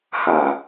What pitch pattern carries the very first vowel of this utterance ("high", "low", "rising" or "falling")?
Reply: low